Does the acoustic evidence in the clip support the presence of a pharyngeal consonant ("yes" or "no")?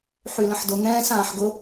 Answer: yes